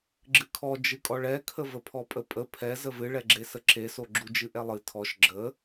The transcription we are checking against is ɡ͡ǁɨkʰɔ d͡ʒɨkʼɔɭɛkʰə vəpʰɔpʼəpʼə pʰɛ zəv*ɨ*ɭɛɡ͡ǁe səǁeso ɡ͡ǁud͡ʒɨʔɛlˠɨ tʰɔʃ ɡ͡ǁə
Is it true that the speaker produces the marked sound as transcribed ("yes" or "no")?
yes